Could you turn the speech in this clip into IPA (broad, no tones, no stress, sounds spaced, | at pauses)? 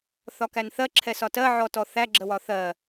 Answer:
θ ɒ k æ n θ ɜ ǁʰ ɛ s ɒ t ɜ ʕ ɔ t ɔ θ æ ɡ͡ǁ ə w ɒ θ ɜ